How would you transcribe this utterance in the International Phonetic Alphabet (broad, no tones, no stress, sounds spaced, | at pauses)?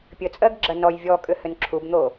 pʲ ə t͡sʼ ɜ ɡ ɡ͡ǁ ɐ n ɔ j vʲ ɔ kʼ ʏ h ʏ n ǁʰ u b n̪ o